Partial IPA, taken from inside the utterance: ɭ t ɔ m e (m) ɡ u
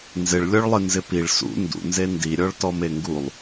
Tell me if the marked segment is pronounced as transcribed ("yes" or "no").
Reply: no